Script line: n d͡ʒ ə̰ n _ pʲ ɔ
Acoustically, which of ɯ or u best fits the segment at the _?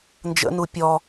u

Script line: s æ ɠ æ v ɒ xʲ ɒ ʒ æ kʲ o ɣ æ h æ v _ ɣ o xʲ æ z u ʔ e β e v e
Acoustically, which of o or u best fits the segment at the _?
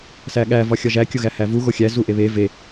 u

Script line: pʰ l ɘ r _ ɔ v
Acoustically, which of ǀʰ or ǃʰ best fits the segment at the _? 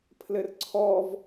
ǀʰ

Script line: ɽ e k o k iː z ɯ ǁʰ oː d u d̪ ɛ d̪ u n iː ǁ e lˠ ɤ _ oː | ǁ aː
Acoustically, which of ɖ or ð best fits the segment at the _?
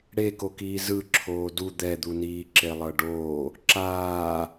ɖ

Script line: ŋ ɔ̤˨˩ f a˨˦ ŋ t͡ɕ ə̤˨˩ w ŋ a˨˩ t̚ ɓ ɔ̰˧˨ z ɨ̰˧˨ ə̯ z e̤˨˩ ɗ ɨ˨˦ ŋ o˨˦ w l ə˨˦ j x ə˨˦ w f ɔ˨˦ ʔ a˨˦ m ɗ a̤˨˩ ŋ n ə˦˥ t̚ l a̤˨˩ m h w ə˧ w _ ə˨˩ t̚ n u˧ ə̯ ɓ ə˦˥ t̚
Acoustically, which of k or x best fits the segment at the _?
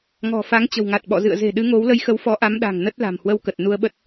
k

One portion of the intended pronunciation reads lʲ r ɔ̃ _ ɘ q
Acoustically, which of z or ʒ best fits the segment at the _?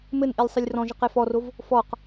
ʒ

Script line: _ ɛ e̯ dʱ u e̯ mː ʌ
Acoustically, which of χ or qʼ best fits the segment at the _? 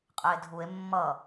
qʼ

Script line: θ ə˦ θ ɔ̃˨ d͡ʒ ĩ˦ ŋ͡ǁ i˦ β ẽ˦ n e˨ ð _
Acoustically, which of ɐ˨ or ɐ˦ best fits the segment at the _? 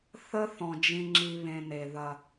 ɐ˨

